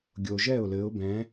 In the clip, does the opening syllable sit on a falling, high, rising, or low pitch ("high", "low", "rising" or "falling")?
low